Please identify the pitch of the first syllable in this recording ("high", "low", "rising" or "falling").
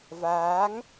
rising